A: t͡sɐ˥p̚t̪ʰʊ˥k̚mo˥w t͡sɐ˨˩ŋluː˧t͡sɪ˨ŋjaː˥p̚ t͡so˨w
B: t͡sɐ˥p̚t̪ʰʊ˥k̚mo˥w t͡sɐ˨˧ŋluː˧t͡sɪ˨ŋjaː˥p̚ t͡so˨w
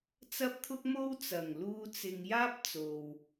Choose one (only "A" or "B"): A